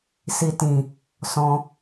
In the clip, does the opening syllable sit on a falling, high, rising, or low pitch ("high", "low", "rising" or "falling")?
low